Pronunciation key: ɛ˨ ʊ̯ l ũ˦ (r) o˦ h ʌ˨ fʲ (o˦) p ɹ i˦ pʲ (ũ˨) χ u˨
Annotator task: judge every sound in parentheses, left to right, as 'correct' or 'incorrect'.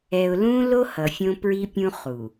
incorrect, incorrect, incorrect

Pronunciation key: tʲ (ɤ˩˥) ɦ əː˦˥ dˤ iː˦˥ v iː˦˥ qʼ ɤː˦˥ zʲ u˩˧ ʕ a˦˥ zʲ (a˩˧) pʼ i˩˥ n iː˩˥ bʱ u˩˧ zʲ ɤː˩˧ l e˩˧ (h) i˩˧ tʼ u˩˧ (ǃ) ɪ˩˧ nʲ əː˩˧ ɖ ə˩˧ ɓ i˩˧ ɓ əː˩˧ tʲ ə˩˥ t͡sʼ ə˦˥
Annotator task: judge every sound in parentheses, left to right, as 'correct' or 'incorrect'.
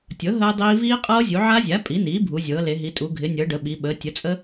correct, incorrect, incorrect, incorrect

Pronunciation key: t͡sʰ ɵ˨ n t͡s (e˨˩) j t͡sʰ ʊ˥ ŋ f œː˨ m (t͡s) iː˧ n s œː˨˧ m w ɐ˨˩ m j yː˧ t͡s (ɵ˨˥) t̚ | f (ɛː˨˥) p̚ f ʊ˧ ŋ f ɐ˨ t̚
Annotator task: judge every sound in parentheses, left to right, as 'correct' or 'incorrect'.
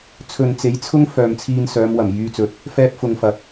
incorrect, incorrect, correct, incorrect

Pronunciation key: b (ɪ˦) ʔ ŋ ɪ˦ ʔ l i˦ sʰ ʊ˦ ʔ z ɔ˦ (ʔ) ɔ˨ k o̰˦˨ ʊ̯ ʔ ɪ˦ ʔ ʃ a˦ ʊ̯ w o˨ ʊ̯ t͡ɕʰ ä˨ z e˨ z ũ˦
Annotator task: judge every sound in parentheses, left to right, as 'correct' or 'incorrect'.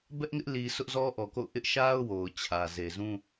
incorrect, correct

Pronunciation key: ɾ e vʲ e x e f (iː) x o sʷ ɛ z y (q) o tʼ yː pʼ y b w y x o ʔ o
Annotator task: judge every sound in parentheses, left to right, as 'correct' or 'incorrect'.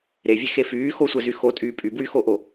incorrect, incorrect

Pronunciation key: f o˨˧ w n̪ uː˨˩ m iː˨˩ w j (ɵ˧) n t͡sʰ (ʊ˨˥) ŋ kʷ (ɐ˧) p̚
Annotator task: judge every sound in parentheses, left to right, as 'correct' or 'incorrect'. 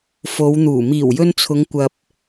correct, incorrect, correct

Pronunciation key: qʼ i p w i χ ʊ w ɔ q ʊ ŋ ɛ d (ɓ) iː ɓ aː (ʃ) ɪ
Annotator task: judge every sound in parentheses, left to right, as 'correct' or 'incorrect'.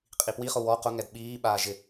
correct, incorrect

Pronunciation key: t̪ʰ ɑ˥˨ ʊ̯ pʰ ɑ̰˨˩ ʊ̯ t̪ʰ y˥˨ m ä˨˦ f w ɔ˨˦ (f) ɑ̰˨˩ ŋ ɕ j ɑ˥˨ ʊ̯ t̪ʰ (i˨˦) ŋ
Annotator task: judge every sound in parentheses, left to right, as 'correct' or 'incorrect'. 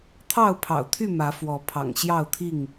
incorrect, incorrect

